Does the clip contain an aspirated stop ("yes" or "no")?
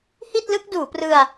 no